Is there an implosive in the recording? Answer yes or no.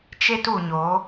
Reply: no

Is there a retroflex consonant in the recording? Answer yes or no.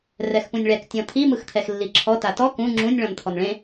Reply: yes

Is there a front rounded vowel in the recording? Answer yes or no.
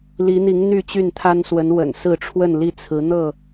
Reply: yes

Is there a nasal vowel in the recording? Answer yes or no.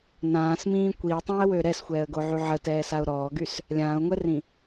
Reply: yes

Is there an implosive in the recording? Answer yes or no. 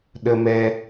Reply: yes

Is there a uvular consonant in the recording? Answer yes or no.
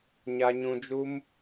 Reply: no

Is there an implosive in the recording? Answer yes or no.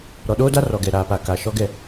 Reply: yes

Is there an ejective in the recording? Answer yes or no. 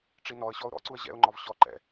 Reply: no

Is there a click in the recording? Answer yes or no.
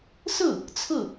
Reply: no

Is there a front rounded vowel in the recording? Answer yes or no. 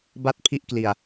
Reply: no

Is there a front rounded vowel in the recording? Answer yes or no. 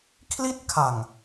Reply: no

